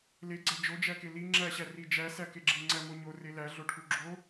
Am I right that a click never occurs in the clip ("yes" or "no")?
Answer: no